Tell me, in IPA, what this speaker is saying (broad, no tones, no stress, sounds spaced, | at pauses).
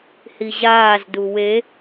h i ʑ aː z d u w e